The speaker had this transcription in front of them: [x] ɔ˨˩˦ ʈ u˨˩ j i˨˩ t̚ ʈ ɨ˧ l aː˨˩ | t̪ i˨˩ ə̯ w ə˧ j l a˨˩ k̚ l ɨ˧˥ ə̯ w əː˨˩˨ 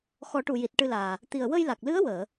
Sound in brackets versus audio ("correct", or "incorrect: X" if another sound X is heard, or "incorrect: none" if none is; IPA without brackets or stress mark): correct